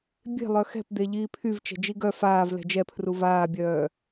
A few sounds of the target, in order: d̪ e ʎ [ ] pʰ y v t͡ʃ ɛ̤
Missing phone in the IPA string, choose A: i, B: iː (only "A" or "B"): B